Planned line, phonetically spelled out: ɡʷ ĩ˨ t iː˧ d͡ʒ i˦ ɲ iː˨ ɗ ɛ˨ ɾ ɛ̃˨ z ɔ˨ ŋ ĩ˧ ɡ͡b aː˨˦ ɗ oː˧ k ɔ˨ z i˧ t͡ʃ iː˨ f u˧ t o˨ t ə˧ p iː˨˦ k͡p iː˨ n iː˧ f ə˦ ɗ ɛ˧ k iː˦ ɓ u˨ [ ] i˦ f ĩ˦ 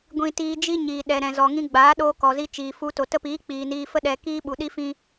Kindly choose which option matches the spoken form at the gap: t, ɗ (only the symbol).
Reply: ɗ